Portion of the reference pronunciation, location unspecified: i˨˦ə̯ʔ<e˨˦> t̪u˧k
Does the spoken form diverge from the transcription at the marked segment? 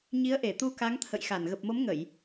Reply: yes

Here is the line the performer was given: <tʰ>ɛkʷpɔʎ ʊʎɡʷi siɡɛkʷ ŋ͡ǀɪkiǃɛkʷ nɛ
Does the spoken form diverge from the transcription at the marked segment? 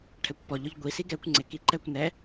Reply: yes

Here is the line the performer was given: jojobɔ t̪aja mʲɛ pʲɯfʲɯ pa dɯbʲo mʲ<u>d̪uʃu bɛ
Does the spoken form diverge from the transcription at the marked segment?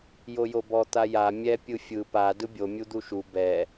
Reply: no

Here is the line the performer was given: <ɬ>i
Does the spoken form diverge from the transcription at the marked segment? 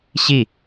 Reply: yes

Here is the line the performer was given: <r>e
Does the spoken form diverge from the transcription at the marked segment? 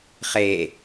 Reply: yes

